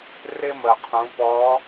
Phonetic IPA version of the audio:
r ɪ˥ m ə˩ qʰ ũ˩˧ p ɔ˧˥

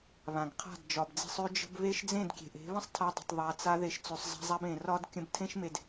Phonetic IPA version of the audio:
β ã˨ ɡ qʰ a̤˦˨ d d͡ʒ ɒ˨ b d͡z e̤˧ sˤ ø˦ d͡ʒ ə̤˦ b β e˦ ʃ d͡z ẽ˦˨ d kʲ e̤˨ ʔ e̤˨˦ β ə̃˦ sˤ tʰ a˧ dˤ ə̤˨ tˤ ðˤ a˨ t͡s a˧ ð e˧ ʃ t͡s ø˧ sˤ zˤ a̤˦ zˤ a˦ b ẽ˨ r ɒ˦ d kʲ ə̃˧ b tʰ ẽ˦ ʃ m e˧ d

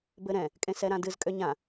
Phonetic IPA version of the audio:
b ɘ ɾ ɛ̃ | kʼ ẽ s ɛ ɾ ã d ɨ z kʼ ø ɲ ã

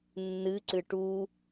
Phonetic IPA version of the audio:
nː ɨ ǀ ɨ ʈ u

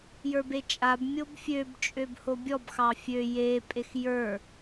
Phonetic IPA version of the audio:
j ə˞ b e t͡ʃʼ a b mʲ o b fʲ ø b t͡ʃʼ ø b h o bʲ ɔ b x ɑ fʲ ø j e pʼ e x j ə˞

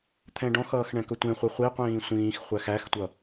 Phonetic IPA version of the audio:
t̪ʰ ɛ̃ ɖ ɔ̃ x ʌː x ɳ ɛ̃ k ɵ tʷ ẽ χʷ ɛ χʷ i qʷ ĩː sʷ ĩː x χʷ æ x æ x tʷ ʌ

